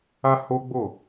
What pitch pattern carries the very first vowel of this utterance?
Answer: high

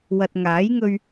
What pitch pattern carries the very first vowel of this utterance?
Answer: low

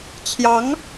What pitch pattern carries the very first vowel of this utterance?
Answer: rising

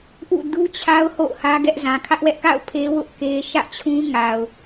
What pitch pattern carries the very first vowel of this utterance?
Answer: falling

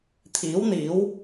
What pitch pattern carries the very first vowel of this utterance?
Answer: rising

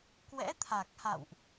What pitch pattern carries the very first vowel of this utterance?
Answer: rising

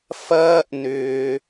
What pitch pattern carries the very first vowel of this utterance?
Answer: high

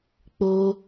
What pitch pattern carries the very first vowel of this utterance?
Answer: high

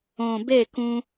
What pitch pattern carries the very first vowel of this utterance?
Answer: low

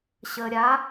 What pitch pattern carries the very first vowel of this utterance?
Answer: low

